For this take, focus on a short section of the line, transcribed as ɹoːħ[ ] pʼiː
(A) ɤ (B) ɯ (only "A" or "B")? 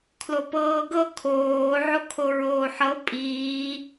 A